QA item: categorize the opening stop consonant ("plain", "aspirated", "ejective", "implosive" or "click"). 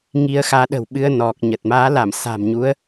implosive